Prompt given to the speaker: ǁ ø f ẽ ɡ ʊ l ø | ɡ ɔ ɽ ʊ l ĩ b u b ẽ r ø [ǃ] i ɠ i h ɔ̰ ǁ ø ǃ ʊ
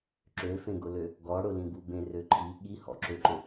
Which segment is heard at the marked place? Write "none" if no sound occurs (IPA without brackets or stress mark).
ǃʰ